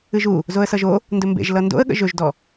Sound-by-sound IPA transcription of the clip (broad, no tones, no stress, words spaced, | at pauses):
ɨʒu | zoə̯sʌʒo | ndɵmbḛʒ lʌndo̰ə̯ ɠə̰ʒɵʒdɔ